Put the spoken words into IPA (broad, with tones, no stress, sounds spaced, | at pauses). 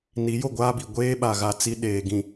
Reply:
n i˨˦ j o˦˨ ɡʷ aː˦ b i˨ ɡʷ eː˦ ɓ a˨ ɣ a˦ t͡s i˦ ɗ eː˨ ɡ ĩ˨